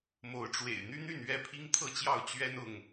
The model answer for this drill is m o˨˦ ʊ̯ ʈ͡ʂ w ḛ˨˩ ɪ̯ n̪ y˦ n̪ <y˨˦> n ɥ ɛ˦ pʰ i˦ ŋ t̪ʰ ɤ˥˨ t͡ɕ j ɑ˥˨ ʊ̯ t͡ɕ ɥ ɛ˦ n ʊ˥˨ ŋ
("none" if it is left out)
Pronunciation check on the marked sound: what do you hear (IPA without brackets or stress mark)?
y˥˨